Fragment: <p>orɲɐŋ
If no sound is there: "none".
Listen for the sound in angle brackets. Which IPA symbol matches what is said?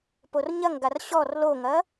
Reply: p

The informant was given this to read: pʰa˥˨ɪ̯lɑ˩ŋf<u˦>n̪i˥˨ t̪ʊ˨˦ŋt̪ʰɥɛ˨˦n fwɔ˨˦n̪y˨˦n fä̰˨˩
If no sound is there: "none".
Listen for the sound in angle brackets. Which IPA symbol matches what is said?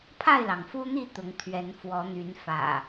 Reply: u˦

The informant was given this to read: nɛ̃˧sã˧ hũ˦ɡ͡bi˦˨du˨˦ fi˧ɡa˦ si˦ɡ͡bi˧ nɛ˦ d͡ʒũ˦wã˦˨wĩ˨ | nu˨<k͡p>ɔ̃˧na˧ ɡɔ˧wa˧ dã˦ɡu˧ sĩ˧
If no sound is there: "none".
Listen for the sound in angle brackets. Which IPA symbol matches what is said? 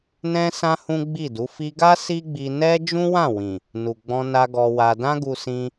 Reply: ɡ͡b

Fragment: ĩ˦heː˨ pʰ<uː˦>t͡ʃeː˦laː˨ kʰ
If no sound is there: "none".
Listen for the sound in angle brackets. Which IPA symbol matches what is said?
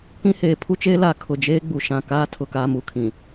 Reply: u˦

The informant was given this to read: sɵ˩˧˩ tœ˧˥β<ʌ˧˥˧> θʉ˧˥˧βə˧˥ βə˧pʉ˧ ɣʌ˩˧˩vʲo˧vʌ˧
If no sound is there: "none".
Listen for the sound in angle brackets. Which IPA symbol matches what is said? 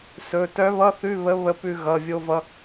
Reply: ʌ˧˥˧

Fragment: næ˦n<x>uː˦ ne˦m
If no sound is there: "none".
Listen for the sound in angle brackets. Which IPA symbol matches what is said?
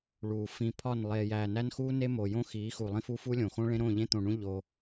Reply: x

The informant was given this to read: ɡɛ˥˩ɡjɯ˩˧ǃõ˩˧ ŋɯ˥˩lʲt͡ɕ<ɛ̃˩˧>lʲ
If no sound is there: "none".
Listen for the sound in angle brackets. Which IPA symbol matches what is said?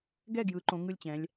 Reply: ɛ̃˩˧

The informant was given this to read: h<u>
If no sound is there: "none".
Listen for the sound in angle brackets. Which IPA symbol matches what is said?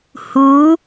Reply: u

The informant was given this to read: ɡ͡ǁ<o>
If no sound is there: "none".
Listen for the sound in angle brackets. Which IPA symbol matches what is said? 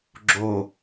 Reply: o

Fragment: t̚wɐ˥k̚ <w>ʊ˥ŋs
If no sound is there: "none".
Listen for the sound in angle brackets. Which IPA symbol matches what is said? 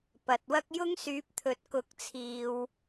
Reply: j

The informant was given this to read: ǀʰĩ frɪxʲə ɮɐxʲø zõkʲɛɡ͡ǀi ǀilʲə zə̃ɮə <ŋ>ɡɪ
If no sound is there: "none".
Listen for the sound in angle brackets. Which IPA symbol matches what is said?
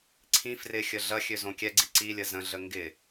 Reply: ŋ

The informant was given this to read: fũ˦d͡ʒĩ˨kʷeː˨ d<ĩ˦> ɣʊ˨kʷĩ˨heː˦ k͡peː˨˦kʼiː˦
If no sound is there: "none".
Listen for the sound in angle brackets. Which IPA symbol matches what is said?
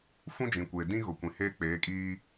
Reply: ĩ˦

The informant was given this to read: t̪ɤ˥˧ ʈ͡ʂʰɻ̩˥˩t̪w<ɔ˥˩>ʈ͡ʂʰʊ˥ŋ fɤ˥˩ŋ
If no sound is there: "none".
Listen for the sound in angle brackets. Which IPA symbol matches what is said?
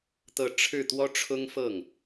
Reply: ɔ˥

